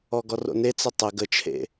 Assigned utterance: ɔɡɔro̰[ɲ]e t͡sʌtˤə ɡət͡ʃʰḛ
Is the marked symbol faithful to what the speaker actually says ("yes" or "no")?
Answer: no